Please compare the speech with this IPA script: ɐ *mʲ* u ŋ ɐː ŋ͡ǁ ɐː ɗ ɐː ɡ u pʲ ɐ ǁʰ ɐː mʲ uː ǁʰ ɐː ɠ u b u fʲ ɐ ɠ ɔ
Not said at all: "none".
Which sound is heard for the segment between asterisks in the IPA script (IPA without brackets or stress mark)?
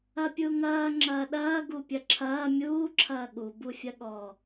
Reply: pʲ